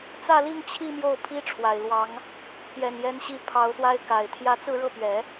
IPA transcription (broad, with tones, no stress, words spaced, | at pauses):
t͡sä˥˧li˥˧ŋt͡ɕʰi˥˧ mjo˥˩ʊ̯pʰi˥ʈ͡ʂʰwa˨˩ɪ̯ lwɑ˧˥ŋ | pjɛ˨˩njɛ˧˥nɕi˧˥ pʰɑ˧˥ʊ̯swa˥ɪ̯ ka˨˩ɪ̯ t̪ʰjä˧˥t͡sɹ̩˥˧ɻɤ˥˩pɥɛ˨˩˦